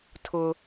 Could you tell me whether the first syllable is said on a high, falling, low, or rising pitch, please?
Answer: low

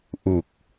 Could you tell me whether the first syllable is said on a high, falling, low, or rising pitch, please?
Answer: low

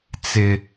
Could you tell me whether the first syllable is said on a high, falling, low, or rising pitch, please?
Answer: high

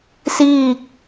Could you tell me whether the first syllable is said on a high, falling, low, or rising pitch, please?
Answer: falling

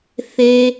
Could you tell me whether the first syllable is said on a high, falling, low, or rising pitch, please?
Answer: low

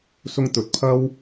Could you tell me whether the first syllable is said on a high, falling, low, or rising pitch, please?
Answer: high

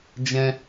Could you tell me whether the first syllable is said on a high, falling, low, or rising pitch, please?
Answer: high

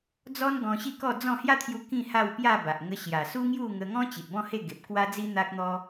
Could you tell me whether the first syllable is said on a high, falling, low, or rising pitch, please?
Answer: high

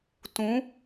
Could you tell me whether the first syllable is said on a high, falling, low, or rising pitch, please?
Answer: rising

